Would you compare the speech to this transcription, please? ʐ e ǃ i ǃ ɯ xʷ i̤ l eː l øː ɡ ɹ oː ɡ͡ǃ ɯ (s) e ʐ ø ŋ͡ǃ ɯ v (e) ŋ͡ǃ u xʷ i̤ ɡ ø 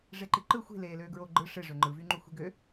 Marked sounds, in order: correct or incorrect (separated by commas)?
incorrect, incorrect